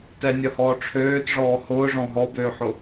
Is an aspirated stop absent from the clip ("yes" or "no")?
no